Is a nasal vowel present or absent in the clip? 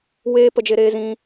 present